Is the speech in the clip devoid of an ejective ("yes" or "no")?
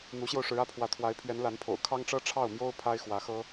yes